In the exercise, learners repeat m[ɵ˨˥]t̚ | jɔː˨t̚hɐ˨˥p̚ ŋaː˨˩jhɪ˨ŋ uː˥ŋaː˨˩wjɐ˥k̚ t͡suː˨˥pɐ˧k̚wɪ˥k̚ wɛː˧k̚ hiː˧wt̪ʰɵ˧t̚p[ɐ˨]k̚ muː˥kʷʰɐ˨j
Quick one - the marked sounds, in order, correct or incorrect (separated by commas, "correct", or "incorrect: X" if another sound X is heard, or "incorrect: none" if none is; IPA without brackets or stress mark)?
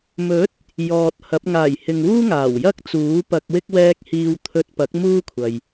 correct, incorrect: ɐ˨˥